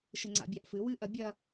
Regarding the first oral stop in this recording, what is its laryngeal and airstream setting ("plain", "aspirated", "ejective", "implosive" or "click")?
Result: click